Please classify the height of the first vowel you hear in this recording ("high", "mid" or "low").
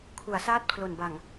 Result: high